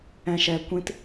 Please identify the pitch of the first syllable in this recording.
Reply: low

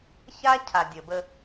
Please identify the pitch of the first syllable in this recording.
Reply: high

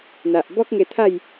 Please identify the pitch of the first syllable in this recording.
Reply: low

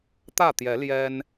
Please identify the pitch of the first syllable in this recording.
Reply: falling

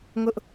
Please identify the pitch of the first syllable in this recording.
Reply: high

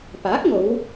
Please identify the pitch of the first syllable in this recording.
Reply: rising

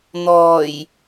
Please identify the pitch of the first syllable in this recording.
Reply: low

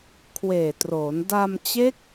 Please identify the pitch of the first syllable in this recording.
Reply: low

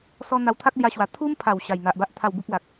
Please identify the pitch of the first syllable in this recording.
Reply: high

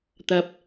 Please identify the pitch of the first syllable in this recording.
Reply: low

